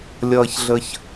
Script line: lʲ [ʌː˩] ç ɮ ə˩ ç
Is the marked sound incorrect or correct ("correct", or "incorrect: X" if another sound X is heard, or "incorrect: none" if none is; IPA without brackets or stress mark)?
correct